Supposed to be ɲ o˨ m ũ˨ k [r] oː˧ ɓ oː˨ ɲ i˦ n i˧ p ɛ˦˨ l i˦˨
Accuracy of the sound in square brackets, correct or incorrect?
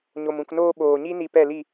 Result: incorrect